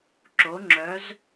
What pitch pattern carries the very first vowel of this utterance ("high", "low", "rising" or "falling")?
rising